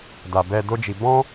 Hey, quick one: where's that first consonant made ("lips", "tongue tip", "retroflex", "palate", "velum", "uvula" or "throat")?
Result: tongue tip